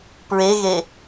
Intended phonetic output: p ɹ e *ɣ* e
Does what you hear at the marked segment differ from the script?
no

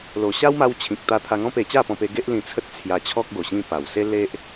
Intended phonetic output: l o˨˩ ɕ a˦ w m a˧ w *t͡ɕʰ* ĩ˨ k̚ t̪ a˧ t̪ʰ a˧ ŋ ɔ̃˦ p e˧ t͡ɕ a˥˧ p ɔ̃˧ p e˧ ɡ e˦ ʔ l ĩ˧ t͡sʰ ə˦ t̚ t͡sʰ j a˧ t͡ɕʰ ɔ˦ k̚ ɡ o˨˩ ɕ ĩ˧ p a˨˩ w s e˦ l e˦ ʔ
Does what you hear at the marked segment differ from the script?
no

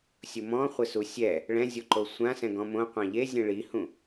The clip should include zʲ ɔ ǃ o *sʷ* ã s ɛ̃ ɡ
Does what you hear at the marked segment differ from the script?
no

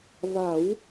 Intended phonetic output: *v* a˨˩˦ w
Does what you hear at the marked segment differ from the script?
no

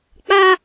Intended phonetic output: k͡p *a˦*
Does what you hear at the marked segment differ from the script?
no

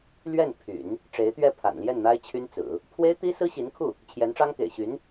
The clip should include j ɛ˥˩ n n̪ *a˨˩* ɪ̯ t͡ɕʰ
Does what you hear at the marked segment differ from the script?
yes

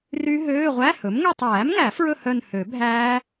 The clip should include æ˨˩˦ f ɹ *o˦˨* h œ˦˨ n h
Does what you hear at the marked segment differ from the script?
yes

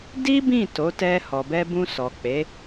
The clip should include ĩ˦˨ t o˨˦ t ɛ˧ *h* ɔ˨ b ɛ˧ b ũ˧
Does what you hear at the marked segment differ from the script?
no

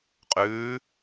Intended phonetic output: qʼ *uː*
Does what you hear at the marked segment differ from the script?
yes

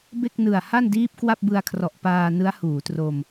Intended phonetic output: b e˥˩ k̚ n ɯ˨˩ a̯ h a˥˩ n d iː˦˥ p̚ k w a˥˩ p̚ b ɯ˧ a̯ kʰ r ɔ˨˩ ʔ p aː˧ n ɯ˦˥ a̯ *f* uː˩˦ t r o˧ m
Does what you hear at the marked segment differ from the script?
yes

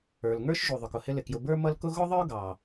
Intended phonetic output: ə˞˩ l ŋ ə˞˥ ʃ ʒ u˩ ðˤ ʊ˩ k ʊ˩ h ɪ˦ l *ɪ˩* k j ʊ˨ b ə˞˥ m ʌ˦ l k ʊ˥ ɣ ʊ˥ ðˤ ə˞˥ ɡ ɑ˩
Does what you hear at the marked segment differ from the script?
no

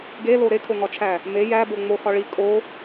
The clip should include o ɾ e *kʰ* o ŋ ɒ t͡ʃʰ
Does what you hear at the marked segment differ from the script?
no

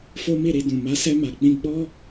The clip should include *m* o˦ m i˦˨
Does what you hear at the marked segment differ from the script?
yes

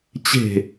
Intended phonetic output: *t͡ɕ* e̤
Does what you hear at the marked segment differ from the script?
no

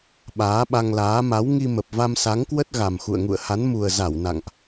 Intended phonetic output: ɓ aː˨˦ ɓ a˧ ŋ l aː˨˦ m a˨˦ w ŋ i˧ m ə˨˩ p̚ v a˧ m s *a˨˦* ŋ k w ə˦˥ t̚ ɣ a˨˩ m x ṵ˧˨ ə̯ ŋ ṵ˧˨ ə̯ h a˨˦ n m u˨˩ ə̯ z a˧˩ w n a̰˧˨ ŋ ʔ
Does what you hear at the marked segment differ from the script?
no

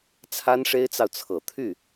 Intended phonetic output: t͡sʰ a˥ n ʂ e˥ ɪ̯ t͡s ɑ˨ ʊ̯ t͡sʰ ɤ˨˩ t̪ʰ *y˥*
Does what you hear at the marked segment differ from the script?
yes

